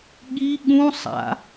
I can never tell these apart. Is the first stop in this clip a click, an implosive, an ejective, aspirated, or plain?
implosive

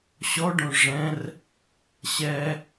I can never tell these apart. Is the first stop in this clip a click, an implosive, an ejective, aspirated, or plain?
plain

